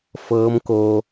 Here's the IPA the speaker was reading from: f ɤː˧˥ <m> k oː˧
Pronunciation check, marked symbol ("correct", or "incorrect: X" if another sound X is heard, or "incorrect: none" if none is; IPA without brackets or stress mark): correct